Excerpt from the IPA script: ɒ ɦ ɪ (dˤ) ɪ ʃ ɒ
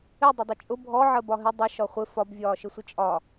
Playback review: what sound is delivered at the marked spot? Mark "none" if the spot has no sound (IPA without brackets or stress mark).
dˤ